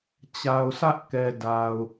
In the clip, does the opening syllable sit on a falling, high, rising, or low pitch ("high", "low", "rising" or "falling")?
low